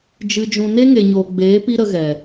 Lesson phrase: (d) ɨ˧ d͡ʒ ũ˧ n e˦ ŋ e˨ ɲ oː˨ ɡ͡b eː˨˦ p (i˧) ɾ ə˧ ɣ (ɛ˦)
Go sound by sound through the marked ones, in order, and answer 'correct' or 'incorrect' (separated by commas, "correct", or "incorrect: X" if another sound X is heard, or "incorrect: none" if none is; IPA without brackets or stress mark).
incorrect: d͡ʒ, incorrect: i˦, incorrect: ɛ˨